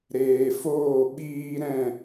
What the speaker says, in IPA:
ɾ eː˨ f oː˦˨ ɓ iː˦ ɾ ɛ̃˦˨

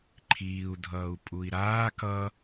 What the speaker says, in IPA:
ǃʰ iː u̯ dʱ ʌː u̯ pʼ u i̯ ɾ aː k ʌ

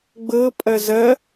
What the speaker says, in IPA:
ɡ͡b ɤ pʼ ɐ z ɐ

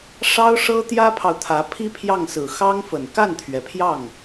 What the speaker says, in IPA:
ʂ ɑ˥ ʊ̯ ʂ ɤ˥ t̪ j ä˥ pʰ ɑ˨ ʊ̯ t̪ʰ ä˧˥ pʰ i˥ pʰ j ɑ˥˩ ŋ s ɹ̩˨˩ x ɑ˥ ŋ f ə˨˩ n k a˥˩ n t̪ʰ ɥ ɛ˩ pʰ j ɑ˥˩ ŋ

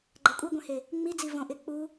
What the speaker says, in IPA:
ɡ͡ǃ a kʷʼ e ɡʷ ẽ h e | ŋ͡m i d͡z i v õ ʔ ɪ k͡p u

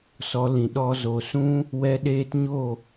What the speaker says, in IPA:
s ɔ˨˦ l ĩ˨ ɗ ɔ˧ z o˨ s ũ˦ | w ɛ˦ ɗ eː˦ t ɲ o˦˨

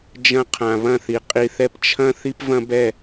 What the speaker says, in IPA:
d͡ʒ ɐ̃˧ qʰ ã˨ β ɐ̃˦˨ θ i˨ qʼ i˧ θ ɛ˦ p t͡ʃʰ ɐ̃˦ θ i˦ p v ɐ̃˦ b ɛ˦˨

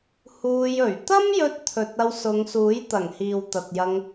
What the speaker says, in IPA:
h uː˧ j ɵ˨˩ ɥ t̪ ɐ˥ m j ɵ˧ t̚ t̪ʰ ɵ˨ t̚ ɐ˧ w s ʊ˨˧ ŋ s uː˨˥ j t̪ ɐ˨˩ ŋ h iː˨ w t̪ ɐ˨ t̚ j ɐ˧ ŋ

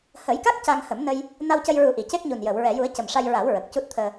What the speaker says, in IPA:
h əː˨˩˦ j k a˦˥ k̚ c a˧ ŋ h ə˨˩˦ m n ə˧ j | n a˧ w c ə˧ j ɹ u˨˩˦ ʔ i˨˩˨ c e˦˥ k̚ ɲ u˨˩ n j əː˨˩˨ w ɹ ɛ˨˩˨ j u˨˩˦ ə̯ c ə˨˩ m ʂ a˧ j ɹ a˨˩˦ w ɹ ə˨˩ k̚ c u˦˥ t̚ t̪ʰ əː˧

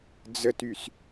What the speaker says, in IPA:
d͡z ə t y s

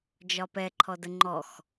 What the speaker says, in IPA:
d͡ʒ ɒ p ɛ ǃʰ ɔ d ə ŋ͡ǃ ɔ x

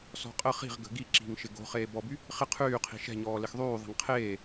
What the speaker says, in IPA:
s ɔ̤ qʼ ə χ i̤ ʁ ɡ ə̤ ɡ i ǁ i̤ ŋ ʃ ɪ ɡ o̤ χ eː b ɔ b y | χ ɪ qʰ yː qʰ i̤ ʃ ɛ̤ ɲ ɔː l ɪ x ðˤ yː ðˤ ɛ̤ ŋ qʰ eː

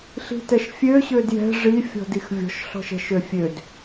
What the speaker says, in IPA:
ɬ i̤ t ɛ ʃ fʲ ø ɕ ø d j ɛ̤ ʐ i fʲ ɔ̤ d i x vʲ ɔ̤ ʃ ɬ ɔ̤ ʃ ɛ̤ ʃ ø fʲ ø d

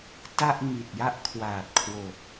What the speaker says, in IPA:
t a˥˩ ʔ ŋ i˨˩ t̚ j a˥˩ ʔ kʰ w aː˨˩ t̚ kʰ w o˨˩ k̚

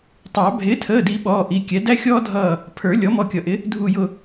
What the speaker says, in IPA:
tˤ ɑ˨˩˦ bʱ ɪː˩˥ tʰ əː˩˧˩ d i˨˩˦ ɓ ɔː˩˧˩ ʔ i˩˧˩ kʲ ɛ˩˥ d æ˦ xʲ ɔː˦ dʱ ʌː˧˩ | pʰ ə˞˨˩˦ lʲ ɔ˩˥ m ɔ˧˩ kʲ ʌ˨˩˦ ʔ ɪ˩˥ | dʱ u˧˩ j ʊ˧˩

